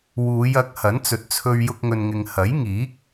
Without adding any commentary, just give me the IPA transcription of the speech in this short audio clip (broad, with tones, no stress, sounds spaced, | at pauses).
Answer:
w uː˨˧ j ɐ˨˥ k̚ h ɐ˨˥ n t͡s ɵ˨ t̚ t͡sʰ ɵ˧ ɥ j ʊ˧ k̚ ŋ ɵ˨ n ŋ ɪ˨ ŋ h ɐ˨˥ j ŋ iː˨˥ k̚